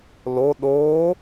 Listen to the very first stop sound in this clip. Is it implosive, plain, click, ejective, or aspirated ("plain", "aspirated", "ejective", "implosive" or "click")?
implosive